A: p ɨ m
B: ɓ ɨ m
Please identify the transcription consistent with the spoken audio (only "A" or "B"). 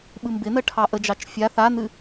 B